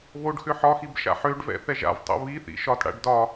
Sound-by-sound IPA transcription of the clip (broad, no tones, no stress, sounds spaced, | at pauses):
β o ɖ x ʏ ħ ɒ x i b ʃ a̰ ħ ø ɖ v ɛ̰ θ ɛ ʒ a̰ v tˤ o̰ β i θ ḭ ʃ ɒ t ɽ a̰ ɖ d ɒ